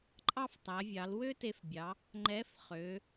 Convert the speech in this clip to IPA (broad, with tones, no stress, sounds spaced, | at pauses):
ǃʼ ɑ˥ f tˤ æ˩˧ vʲ ɑ˩˧ l w ø˥ t e˧ f bʲ ɑ˩˧ | ŋ͡ǃ ɛ˧˥ f χ ø˩˧